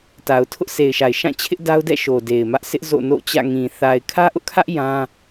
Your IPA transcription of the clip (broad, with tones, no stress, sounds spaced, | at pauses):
t a˨ ʊ̯ tʰ ʊ˦ ʔ sʰ e˨ ɪ̯ ʃ a˨ ɪ̯ ʃ ã˦˨ t͡ɕʰ ɪ˦ ʔ d a˦ ʊ̯ d ɛ̰˦˨ ʃ o˨ d e˨ ɪ̯ m ä˦ ʔ sʰ ɪ˦ ʔ z o̰˦˨ n o̰˦˨ t͡ɕ ä̰˦˨ ŋ ĩ˨ θ a˨ ɪ̯ kʰ ä˦ ʔ ʊ˦ ʔ kʰ ä˦ ʔ j ã˦